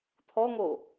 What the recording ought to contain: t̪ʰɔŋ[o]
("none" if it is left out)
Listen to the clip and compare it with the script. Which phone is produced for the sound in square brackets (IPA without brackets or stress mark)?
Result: o